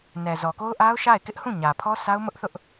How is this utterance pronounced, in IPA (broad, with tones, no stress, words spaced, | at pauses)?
nɛ˨zɔ˨ko˦ʊ̯ʔa˦ʊ̯ ʃa˦˨ɪ̯kɪ˦ʔhũ˦˨ ɲä˨ pʰɔ˦sa˦ʊ̯mʊ˦ʔθʊ˦ʔ